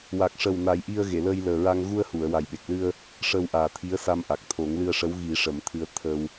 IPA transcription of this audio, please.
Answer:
w a˨˩ k̚ ʂ ə˨˩ w n a˨˩˦ j ʔ i˧ ə̯ ɣ e˨˩˨ l əː˧ j l əː˨˩ ɹ a˧ ŋ ɣ u˧ ə̯ h u˨˩˨ ə̯ w a˨˩ j ɓ e˨˩ k̚ l ɨ˧ ə̯ | ʂ əː˧ w ʔ aː˨˩ t̪ʰ i˧˥ ə̯ s a˧ m ʔ a˨˩ k̚ t̪ʰ o˨˩˦ ŋ l ɨ˧ ə̯ ʂ ə˧˥ w ɣ i˨˩˦ ʂ ə˨˩˦ m t̪ʰ ɨ˧ ə̯ t̪ʰ ə˧ w

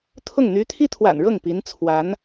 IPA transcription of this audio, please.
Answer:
t̪ʰ ʊ˥˩ ŋ n̪ y˧˥ t̪ʰ i˥ t̪ʰ w a̰˨˩ n ɻ ɤ˥˩ ŋ p i˧˥ n t͡sʰ w a˧˥ n

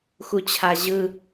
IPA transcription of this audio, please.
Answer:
x u t͡ɕʰ a ʑ ɯ

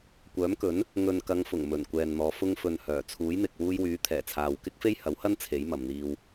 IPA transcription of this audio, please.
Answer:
kʷ œː˨˥ m k ɵ˨˥ n | ŋ ɵ˨ n k ɐ˨˧ ŋ f ʊ˨˩ ŋ m ɵ˨˩ n kʷ ɛː˨ n n̪ ɔː˨˧ f ʊ˧ ŋ f ɵ˨ n h œː˨˩ t͡sʰ uː˨˥ j n̪ ɪ˨ k̚ w uː˧ j w yː˨˥ t̪ʰ ɛː˨˩ t͡sʰ aː˨ w k ɪ˥ k̚ f e˥ j h ɐ˨˥ w h ɐ˥ n t͡sʰ e˨˥ j m ɐ˨ m n̪ iː˧ w

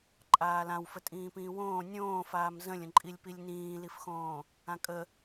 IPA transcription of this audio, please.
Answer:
ǃʼ aː l ã w f ə tʼ ĩː p ĩː w õː nʲ õː f aː m z ə̃ lʲ ə̃ ǃʼ i lʲ p i lʲ n ĩː l i f x õː | ã kʼ ə

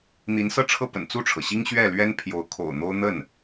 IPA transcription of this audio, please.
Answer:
n̪ i˧˥ n s ɤ˥˧ ʈ͡ʂʰ ɤ˥˩ p ə̰˨˩ n t͡s u˥˩ ʈ͡ʂʰ ɤ˩ ɕ i˥ ŋ ɕ ɥ ɛ˥˩ l ɥ ɛ˥ n pʰ j o˧˥ ʊ̯ kʰ o̰˨˩ ʊ̯ n̪ o˥ ʊ̯ n̪ ə˥˩ n

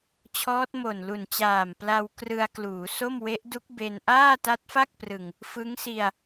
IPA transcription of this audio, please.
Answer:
t͡ɕʰ ɔː˦˥ t̚ m o˨˩ n l u˨˩ n t͡ɕ aː˨˩ m p l a˧ w k r ɯ˧ a̯ k l uː˩˦ s o˥˩ m w e˦˥ ʔ d u˦˥ k̚ b e˧ n ʔ aː˥˩ t a˦˥ t̚ f a˥˩ k̚ p r ɯ˨˩ ŋ | f ɯ˦˥ ŋ s i˧ a̯

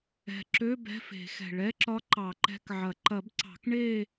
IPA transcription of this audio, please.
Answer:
ɛ̤˨˩ ǁ ø˧˥˧ b ɛ̤˧˥˧ f e̤˨˩˦ x ɛ̤˨˩ ɭ ɛ˧˥˧ ǁ ɒ˧˥ ǃ ɑ˨˩˦ ǃ ɛ̤˧˥˧ k ʕ ɐ˨˩˦ ǃ ɐ˨˩˦ b ǀ ɑ̤˨˩˦ k ɳ e˥˧

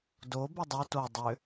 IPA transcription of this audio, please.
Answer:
d o b e dˤ o t o dˤ ʏ

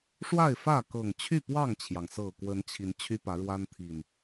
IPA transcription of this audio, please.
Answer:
ʂ w a˥˨ ɪ̯ f ä˥˨ k ɤ˨˩ ŋ t͡ɕʰ y˥˨ p w ɑ˥˨ ŋ t͡ɕʰ j ɑ˩ ŋ s ɤ˨˩ k w ə˨˦ n t͡ɕʰ i˨˦ n t͡ɕʰ y˦ p ä˨˦ ɻ w a˦ n t̪ʰ i˨˩ n

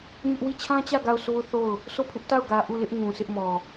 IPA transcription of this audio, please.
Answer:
ɲ ʊ˦ ʔ w i˦˨ t͡ɕʰ ã˦ t͡ɕ ä˦˨ ɡ a˦˨ ʊ̯ s o˦ ʊ̯ θ o˦˨ ʊ̯ | sʰ o˦˨ pʰ ɪ˦ ʔ t a˦˨ ʊ̯ ɡ ä˨ ʔ u˦˨ l ɪ˦ ʔ ŋ ũ˨ s ɪ˦ ʔ m ɔ˨

